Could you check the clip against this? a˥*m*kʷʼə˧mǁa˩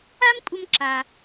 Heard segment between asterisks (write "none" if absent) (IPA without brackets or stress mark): m